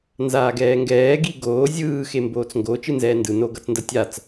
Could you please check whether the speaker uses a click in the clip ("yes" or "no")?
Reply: no